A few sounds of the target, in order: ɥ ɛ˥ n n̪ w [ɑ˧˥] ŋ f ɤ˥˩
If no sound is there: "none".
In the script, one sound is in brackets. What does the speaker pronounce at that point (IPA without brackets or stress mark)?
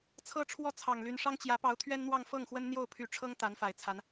ɑ˥˧